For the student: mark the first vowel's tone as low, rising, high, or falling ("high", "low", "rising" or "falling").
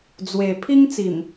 low